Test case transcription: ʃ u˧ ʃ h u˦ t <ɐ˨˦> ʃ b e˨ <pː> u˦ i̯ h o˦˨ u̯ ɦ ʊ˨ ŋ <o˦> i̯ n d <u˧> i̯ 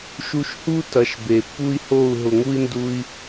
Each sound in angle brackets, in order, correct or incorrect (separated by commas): correct, correct, incorrect, correct